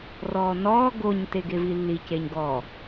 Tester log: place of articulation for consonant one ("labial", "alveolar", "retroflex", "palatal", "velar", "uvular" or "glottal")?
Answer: alveolar